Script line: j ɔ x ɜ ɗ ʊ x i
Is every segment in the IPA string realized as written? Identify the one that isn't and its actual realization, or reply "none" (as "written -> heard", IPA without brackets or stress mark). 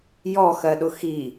none